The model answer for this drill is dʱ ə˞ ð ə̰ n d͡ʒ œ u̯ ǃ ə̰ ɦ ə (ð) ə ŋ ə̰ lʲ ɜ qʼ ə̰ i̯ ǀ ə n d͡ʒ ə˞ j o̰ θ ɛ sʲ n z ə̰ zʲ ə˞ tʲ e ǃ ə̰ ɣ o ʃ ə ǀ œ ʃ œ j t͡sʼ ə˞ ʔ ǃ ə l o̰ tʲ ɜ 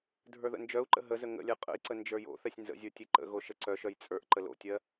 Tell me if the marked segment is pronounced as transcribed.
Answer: no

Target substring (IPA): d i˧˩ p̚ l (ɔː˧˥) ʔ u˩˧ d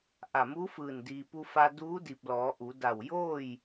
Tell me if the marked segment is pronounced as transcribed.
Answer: no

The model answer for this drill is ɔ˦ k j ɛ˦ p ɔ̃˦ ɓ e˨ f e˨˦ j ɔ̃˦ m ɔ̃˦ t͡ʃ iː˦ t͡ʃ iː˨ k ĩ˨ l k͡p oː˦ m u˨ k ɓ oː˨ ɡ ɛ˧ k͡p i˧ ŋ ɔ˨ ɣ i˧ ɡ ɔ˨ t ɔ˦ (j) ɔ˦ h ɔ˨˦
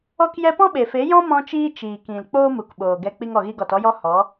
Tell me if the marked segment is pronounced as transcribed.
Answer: yes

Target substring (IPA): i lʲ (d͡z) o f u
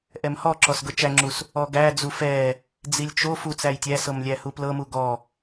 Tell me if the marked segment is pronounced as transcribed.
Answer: no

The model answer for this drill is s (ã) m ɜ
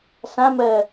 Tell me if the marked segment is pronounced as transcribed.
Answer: yes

